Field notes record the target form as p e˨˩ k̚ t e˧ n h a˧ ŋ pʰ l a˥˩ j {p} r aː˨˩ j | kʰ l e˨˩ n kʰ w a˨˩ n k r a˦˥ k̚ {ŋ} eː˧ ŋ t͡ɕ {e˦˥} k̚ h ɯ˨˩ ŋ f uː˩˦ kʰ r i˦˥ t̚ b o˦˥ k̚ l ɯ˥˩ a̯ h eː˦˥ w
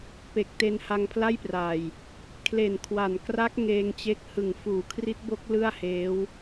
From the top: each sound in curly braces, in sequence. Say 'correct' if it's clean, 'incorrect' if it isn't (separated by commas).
correct, correct, correct